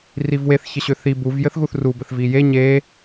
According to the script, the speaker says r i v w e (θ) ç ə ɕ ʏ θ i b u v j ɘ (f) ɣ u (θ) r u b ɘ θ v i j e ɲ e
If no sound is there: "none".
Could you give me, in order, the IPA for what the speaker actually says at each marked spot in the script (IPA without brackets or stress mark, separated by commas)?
θ, θ, θ